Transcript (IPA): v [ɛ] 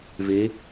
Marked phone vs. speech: incorrect: e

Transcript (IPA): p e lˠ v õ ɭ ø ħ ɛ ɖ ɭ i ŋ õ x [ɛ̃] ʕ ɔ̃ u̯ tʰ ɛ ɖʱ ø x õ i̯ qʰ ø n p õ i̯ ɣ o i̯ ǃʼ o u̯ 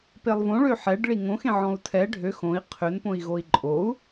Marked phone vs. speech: incorrect: ẽ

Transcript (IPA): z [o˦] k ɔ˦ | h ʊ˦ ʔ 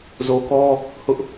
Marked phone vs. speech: incorrect: o˨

